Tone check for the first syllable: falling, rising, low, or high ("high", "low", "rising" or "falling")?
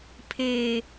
low